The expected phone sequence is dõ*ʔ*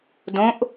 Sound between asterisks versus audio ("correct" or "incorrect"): correct